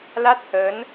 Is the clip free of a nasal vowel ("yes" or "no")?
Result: yes